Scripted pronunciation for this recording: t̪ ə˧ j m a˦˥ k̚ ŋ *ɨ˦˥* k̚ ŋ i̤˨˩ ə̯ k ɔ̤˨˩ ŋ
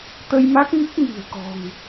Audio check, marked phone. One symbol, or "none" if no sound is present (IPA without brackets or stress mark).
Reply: ɨ˦˥